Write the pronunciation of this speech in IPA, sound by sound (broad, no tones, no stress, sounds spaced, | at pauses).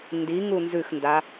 n d i ŋ u n z ʉ x n d a